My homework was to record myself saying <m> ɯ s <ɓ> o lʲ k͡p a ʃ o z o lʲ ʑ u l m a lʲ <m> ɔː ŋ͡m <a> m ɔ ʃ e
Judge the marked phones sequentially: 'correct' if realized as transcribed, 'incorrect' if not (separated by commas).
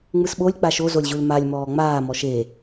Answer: incorrect, correct, correct, incorrect